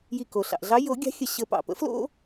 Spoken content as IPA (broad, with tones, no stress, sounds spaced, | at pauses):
j i˧˩ k o˩ ɬ ɑ̰˩ ʔ ɮ ɑ˨˥ j o˨˩˦ ɡʲ ɑ̤˨˥ xʲ ə˧˩ ɕ ə˨˩˦ p ɑ̰˩ p ə̰˨˥ f l o̰˦